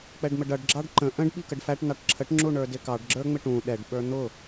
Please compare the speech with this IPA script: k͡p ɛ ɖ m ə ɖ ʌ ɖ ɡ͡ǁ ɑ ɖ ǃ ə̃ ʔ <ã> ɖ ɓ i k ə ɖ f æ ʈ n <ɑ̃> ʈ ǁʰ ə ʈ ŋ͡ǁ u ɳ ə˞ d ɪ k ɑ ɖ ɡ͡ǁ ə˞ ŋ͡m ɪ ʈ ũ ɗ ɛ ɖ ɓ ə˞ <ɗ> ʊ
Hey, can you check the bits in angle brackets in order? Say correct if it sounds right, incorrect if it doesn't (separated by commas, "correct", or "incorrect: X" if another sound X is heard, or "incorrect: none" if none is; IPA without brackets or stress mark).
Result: incorrect: ə̃, incorrect: ɑ, incorrect: n̪